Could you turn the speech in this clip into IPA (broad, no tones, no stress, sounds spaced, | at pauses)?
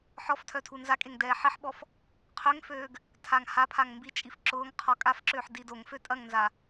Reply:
ħ ɔ f tʰ œ tʰ u n z a kʼ e ŋ d ɛː ħ ɪ ħ ɓ ɔ f | qʰ ø ŋ f øː ɡ | tʰ a ŋ h a pʰ a ŋ m b i t͡ʃʼ i f ǁ ʊː ŋ qʰ ɔ kʼ a f ǁ øː ħ d i d o ŋ f ø tʼ ɐ ŋ n z a